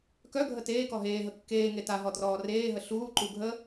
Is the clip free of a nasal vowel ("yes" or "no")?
yes